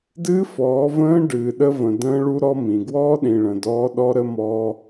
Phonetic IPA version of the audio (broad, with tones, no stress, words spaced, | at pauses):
dɨː˦fɔː˨˦ və̃ː˦ ɖɨː˨ɗə˦və̃˨ də̃ː˦ɭu˦ ɾɔ˦mĩ˨ ɡwɔː˦ɗĩ˨ɭə̃˨ dɔː˦ɗɔ˦ɾə˦mɔ˦